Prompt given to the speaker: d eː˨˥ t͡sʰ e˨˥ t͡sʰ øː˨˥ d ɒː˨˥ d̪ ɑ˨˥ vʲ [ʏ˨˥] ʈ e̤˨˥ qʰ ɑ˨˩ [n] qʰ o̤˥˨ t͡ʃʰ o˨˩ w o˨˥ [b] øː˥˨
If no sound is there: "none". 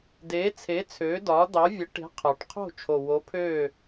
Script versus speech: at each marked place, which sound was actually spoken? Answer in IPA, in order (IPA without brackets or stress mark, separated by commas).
ə˨˥, ʈ, pʰ